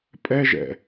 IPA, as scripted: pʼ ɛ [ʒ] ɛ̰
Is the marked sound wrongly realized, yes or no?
no